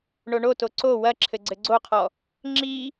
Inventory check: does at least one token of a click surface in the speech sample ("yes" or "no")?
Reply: yes